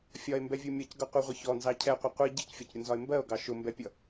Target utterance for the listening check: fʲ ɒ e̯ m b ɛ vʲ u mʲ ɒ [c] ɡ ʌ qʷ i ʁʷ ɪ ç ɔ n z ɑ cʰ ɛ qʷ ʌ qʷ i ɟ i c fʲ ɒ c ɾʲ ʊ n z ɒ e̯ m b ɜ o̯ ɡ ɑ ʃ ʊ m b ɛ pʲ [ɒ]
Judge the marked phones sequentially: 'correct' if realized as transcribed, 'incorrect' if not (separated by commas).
correct, incorrect